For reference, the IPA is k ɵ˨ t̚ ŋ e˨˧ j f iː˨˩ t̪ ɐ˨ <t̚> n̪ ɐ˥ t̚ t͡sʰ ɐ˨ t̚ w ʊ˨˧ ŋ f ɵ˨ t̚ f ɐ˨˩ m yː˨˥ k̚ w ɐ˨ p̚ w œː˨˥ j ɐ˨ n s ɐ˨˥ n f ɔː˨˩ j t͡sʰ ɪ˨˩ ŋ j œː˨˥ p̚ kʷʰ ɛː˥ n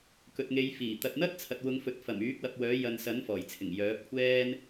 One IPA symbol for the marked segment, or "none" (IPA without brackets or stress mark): t̚